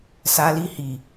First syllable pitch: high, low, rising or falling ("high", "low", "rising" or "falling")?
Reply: high